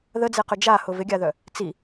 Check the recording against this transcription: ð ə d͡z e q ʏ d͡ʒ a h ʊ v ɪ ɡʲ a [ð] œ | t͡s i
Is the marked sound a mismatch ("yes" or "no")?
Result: no